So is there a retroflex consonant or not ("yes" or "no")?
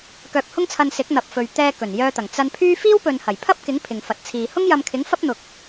no